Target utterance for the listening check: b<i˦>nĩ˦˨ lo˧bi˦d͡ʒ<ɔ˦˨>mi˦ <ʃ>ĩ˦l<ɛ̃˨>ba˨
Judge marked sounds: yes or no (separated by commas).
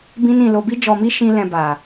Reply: no, no, yes, no